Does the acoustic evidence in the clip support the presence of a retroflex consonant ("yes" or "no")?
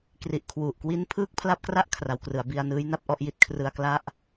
no